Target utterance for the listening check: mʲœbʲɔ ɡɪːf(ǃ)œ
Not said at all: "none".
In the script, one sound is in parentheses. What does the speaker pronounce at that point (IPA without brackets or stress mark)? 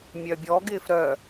ɾ